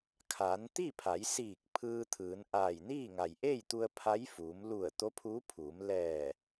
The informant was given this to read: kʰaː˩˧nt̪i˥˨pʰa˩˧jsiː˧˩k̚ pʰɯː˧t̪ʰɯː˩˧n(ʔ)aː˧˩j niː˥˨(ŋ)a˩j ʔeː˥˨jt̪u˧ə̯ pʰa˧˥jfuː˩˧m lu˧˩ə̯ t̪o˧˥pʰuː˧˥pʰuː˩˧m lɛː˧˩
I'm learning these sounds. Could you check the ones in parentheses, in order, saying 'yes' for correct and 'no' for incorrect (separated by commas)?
yes, yes